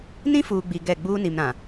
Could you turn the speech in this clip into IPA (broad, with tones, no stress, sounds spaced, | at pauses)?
n ĩ˦ f uː˨ ɡ͡b i˨ ɡ ɛ˦˨ ɡ͡b uː˦ n i˨ m ɾ ã˨